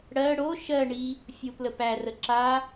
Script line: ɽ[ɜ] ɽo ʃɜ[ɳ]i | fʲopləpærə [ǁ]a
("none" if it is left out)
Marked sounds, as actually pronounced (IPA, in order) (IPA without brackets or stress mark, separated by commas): ɜ, ɳ, ǁ